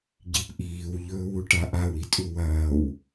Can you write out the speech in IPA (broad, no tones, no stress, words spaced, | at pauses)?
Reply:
ɟipʔiːw ʎɵːwuʈaʔaw itʼuwɐːw